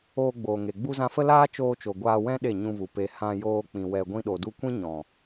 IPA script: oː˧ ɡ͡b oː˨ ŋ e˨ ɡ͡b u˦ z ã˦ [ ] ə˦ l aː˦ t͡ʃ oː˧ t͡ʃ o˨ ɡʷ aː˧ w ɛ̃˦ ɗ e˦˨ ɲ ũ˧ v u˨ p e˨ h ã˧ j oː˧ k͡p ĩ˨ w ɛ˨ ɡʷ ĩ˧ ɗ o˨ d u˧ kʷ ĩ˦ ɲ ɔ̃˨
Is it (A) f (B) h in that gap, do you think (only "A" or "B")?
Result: A